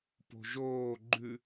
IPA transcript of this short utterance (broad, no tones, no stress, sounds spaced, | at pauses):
p o̤ ʒ oː ɡ͡ǃ ʉ